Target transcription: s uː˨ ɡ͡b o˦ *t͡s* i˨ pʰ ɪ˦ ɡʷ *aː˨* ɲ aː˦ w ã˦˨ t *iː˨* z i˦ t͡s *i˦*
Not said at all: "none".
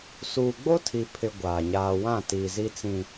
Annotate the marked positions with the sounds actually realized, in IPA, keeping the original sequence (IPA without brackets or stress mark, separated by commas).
tʰ, aː˨, iː˨, ĩ˦